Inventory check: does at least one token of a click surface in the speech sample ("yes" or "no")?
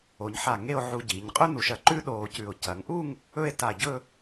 yes